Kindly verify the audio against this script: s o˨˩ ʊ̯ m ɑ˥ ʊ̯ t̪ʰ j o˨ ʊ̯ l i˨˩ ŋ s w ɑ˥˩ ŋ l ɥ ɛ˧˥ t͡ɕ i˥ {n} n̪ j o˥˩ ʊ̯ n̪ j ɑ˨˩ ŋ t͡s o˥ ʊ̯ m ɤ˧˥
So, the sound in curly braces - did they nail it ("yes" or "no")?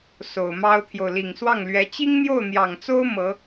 no